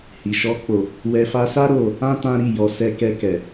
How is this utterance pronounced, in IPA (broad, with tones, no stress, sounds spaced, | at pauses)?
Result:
h i˨ ʃ ɔ˧ k͡p o˨ | w ɛ˧ f a˧ s a˦ ɾ o˦˨ | ã˦ t ã˦ ɾ i˦˨ j ɔ˨˦ s ɛ˧ k ɛ˧ k ɛ˨